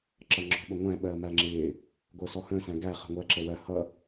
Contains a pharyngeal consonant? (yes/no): no